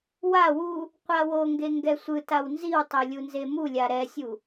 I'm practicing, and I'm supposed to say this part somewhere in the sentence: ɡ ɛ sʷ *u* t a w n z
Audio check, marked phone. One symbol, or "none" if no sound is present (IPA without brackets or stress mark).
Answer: ɯ